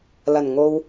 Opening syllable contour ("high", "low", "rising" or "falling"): low